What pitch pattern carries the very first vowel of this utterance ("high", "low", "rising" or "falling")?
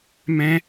high